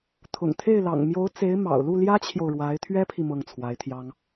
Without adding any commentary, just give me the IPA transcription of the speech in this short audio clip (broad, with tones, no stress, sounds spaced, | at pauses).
t̪ʰ ʊ̰˨˩ ŋ t̪ʰ e˥˩ ɪ̯ l ɑ̰˨˩ ŋ m j o˧˥ ʊ̯ t͡s e˧˥ ɪ̯ m ɑ̰˨˩ ʊ̯ l u˥˩ l j ä˥ t͡ɕʰ j o˨ ʊ̯ ɻ w a˧˥ ɪ̯ t̪ʰ ɥ ɛ˥ pʰ i˨ m ɤ˥˩ ŋ t͡sʰ w a˧˥ ɪ̯ t̪ʰ j ɑ˥ ŋ